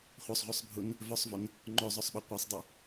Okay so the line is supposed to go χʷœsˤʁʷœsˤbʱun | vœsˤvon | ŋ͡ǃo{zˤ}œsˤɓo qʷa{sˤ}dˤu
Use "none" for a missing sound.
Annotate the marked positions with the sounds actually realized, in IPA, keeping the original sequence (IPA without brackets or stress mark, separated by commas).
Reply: zˤ, sˤ